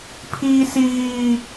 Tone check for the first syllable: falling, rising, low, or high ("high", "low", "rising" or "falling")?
high